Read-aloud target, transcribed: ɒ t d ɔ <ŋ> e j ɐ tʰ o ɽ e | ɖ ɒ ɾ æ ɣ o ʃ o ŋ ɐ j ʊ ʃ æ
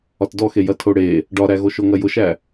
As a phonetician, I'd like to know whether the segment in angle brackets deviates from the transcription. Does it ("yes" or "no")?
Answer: yes